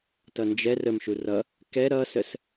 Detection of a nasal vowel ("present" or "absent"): absent